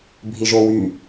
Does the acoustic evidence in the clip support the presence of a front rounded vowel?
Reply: yes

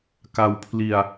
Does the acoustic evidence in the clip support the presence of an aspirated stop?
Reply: yes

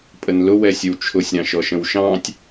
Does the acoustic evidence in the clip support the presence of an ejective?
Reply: yes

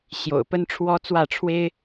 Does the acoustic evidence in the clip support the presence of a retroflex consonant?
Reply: yes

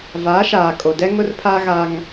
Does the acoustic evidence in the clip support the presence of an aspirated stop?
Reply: yes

